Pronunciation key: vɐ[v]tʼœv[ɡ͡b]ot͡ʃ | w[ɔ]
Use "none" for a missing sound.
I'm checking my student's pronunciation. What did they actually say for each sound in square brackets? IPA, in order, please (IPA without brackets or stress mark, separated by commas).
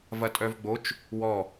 none, ɡ͡b, ɔ